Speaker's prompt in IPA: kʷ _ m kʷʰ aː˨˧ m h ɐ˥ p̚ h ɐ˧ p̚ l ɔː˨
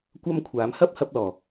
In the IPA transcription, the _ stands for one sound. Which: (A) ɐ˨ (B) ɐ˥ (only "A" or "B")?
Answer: B